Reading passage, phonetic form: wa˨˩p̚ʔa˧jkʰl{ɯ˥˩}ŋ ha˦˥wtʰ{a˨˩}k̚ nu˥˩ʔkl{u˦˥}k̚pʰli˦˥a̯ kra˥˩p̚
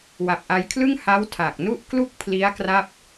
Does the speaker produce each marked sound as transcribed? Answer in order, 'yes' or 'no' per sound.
yes, yes, no

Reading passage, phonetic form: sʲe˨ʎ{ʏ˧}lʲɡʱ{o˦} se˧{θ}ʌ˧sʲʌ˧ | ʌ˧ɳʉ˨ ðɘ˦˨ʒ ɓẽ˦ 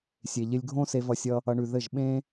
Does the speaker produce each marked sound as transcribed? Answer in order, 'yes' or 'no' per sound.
no, no, no

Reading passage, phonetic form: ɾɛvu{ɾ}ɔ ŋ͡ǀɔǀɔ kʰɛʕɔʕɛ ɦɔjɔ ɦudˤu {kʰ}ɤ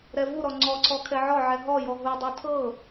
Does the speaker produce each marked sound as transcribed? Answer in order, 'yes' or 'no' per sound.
yes, no

